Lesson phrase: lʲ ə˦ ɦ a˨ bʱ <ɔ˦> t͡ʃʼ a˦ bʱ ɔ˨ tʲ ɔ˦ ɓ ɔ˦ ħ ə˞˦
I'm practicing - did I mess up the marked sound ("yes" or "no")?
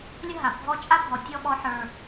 no